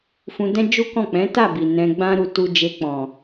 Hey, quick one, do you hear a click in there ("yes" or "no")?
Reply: no